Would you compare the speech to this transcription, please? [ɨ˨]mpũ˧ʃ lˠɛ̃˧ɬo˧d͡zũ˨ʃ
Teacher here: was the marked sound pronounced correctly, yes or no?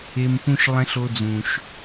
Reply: no